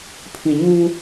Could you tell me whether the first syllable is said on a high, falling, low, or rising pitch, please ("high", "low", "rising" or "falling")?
low